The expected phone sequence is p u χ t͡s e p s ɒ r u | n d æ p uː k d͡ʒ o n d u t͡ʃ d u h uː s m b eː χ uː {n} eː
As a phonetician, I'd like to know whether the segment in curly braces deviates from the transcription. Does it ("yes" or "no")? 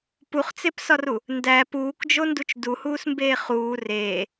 yes